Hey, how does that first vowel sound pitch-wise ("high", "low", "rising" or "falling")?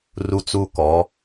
high